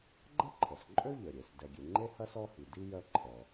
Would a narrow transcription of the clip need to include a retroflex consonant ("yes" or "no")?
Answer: no